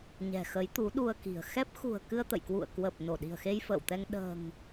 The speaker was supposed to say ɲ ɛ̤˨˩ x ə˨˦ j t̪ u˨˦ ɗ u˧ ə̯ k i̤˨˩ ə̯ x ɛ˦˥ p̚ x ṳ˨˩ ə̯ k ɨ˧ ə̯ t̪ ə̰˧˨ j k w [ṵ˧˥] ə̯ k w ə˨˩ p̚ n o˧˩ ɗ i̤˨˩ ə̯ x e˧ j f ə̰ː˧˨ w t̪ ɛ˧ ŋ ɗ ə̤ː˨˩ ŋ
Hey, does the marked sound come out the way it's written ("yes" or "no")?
no